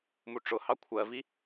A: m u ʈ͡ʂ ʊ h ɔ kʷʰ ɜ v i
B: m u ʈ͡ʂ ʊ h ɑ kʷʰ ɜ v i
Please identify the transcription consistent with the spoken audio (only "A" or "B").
B